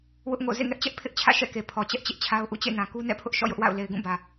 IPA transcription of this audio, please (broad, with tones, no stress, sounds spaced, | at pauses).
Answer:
w ʊ˦ ʔ ŋ o̰˦˨ z ḛ˦˨ ŋ ɛ˦ ʔ t͡ɕ ɛ˦ ʔ pʰ ɪ˦ ʔ t͡ɕʰ ä̰˦˨ ʃ ɛ̰˦˨ k e˨ pʰ ɔ˨ t͡ɕ ɛ˦ ʔ t͡ɕ ɪ˦ ʔ t͡ɕʰ a˦ ʊ̯ ʔ ṵ˦˨ t͡ɕ ḛ˦˨ n ã˨ k u˦ n ɛ̰˦˨ pʰ ʊ˦ ʔ ʃ ɔ̰˦˨ j ʊ˦ ʔ w a̰˦˨ ʊ̯ l e˨ ɪ̯ ɡ ũ˦˨ b ä˨